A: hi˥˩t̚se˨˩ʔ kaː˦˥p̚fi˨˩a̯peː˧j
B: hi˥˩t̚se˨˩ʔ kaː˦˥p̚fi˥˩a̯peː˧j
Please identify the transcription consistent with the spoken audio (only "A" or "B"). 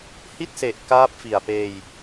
A